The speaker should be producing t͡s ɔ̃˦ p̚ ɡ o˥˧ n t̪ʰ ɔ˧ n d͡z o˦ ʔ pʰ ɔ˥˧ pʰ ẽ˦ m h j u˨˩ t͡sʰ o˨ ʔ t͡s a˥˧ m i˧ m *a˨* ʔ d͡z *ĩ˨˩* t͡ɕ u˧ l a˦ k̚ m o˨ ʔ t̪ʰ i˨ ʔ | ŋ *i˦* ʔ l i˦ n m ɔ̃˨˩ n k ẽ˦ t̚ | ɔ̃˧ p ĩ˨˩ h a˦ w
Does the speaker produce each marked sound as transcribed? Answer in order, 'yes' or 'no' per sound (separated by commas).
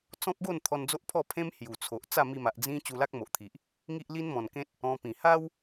yes, no, yes